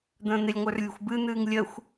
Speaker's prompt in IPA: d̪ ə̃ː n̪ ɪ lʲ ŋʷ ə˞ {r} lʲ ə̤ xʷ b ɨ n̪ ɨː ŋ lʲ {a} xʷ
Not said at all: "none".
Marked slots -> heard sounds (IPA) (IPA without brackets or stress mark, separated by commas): r, ə